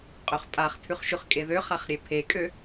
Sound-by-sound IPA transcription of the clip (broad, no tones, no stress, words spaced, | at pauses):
qʼøχpʼaχ tʰʉχʃʉχkʼeðø χaχɾʲepʰekʼø